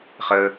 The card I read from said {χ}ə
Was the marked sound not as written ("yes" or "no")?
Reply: no